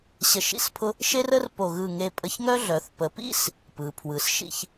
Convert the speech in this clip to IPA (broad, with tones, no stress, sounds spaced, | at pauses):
ɕ ə˧ ʃ ḭ˥˧ s pʰ ʊ˥ | ʃ e˥ r ə˥ r p o˧˩ ɣ ɯ˧˩ ŋ e˧ pʼ ə˧ ç ŋ œ˥ ɮ œ˩˧ θ p ə˩˧ p ḭ˥ s | p ɯ˩˧ pʰ w ɯ˩˧ s ʃ ḭ˥˧ ç